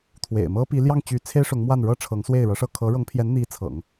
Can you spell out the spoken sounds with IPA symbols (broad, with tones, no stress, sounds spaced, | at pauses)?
t̪ʰ w ḛ˨˩ ɪ̯ m ɤ˥ p i˧˥ l j ɑ˥˩ ŋ t͡ɕ y˧˥ t͡sʰ e˥ ɪ̯ ʂ ʊ˧˥ ŋ m w a˥˩ n ɻ ɤ˥ ʈ͡ʂʰ ɤ˧˥ ŋ s w e˥˩ ɪ̯ ɻ ɤ˧˥ ʂ ɤ˥˩ kʰ ɤ˧˥ ɻ ɤ˧˥ ŋ pʰ j ɛ˧˥ n n̪ i˧˥ t͡sʰ ɤ̰˨˩˦ ŋ